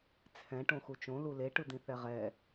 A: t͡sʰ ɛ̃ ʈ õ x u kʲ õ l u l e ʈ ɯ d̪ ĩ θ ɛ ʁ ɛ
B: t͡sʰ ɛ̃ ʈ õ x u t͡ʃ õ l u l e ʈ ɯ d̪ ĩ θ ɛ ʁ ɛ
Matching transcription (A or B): B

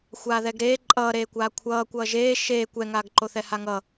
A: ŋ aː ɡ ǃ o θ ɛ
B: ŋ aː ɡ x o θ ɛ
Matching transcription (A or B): A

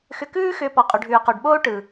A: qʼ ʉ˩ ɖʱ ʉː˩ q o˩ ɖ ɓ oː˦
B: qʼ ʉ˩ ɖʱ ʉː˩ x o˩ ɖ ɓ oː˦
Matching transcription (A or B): A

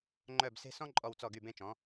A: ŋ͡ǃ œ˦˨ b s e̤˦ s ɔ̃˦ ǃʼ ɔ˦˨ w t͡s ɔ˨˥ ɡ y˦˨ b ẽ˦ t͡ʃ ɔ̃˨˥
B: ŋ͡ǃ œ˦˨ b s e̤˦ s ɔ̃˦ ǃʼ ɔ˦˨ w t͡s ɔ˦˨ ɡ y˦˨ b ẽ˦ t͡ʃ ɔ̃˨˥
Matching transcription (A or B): B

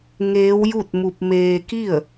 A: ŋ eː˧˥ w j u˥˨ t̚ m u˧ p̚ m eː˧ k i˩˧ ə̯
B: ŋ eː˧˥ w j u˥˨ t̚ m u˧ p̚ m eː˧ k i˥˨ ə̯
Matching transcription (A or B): B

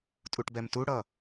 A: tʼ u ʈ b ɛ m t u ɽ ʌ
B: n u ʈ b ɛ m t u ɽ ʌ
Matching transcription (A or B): A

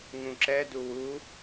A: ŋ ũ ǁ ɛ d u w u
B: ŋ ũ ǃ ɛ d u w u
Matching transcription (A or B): A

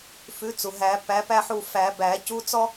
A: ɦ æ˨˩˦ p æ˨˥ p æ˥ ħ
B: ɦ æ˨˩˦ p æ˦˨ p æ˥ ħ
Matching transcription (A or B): A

